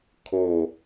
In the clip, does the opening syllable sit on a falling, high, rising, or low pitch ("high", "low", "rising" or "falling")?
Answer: falling